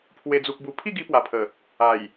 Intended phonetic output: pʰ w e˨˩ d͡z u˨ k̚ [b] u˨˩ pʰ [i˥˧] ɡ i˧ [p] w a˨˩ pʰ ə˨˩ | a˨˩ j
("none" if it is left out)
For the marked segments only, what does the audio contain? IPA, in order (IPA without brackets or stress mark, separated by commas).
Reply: b, i˥˧, p